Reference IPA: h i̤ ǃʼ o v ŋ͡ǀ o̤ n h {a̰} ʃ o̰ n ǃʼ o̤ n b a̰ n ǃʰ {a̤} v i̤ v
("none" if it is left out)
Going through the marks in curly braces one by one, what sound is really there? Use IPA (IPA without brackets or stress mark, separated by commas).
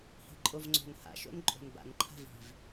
a̰, a̤